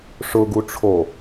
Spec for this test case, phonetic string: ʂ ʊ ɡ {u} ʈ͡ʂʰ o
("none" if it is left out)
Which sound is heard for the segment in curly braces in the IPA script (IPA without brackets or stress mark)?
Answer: u